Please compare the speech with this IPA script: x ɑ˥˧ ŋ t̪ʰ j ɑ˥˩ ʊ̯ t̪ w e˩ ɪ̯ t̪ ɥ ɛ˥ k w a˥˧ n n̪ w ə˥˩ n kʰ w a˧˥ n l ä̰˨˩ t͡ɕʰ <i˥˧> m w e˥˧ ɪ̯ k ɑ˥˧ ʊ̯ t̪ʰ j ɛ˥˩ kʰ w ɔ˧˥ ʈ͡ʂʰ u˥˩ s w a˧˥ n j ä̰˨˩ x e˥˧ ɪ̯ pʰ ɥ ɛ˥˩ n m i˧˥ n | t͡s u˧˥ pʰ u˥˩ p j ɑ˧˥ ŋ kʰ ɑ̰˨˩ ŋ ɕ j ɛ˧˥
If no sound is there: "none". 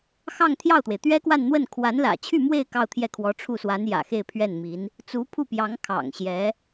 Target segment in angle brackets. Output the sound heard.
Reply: y˥˧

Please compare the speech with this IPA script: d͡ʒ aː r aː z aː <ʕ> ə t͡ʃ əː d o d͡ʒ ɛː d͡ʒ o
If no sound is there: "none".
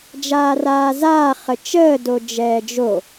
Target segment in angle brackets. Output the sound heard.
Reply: χ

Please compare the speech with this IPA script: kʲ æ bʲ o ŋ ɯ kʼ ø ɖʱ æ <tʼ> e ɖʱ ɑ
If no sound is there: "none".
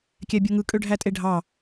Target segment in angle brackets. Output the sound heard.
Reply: tʼ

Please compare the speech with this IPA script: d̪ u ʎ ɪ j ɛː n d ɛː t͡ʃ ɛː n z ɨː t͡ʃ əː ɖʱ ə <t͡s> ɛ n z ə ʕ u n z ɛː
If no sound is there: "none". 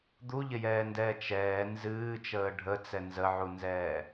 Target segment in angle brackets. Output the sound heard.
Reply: t͡s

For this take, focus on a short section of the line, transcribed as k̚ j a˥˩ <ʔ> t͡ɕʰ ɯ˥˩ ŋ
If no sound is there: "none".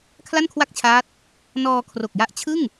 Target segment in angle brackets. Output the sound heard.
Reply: ʔ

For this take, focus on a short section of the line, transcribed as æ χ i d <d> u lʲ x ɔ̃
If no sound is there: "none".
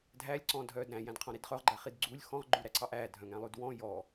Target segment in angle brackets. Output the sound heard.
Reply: ɡ͡ǀ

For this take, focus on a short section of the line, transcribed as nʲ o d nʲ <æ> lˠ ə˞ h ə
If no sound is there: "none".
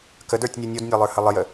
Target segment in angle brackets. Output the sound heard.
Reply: a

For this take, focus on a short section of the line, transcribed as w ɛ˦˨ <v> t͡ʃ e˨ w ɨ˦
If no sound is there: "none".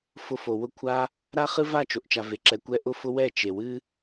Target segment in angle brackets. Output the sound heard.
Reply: none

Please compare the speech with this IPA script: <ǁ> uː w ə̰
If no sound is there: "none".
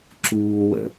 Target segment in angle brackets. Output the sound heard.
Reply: ǁ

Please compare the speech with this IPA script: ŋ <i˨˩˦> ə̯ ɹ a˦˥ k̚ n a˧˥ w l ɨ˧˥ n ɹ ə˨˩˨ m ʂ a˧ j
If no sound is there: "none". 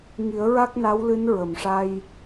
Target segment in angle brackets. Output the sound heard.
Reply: i˨˩˦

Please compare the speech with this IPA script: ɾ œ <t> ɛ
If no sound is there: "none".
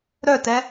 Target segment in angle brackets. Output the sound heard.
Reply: t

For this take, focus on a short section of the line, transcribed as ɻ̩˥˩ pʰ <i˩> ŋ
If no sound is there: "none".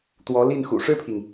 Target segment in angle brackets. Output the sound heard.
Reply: i˩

